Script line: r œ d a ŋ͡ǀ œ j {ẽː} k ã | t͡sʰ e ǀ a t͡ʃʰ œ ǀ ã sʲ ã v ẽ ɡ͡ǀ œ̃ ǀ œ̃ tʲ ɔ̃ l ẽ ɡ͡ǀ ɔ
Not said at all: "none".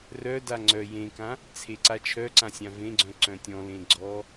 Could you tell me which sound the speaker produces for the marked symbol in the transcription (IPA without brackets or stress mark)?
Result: ẽ